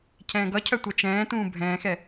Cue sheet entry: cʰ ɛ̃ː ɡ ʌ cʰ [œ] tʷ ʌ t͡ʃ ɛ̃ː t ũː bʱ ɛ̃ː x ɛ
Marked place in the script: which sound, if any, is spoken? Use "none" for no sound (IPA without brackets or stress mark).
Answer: œ